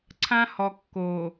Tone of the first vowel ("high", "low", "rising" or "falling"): high